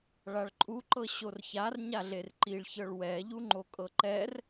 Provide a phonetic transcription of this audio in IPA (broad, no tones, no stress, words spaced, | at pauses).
ɭaɭǃʼuǃɤ ɕorçar ɲaɮerǃiɭçɤɭ wɛ ʎuŋ͡ǃokʼɤǃɛr